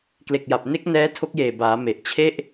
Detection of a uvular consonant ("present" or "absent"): absent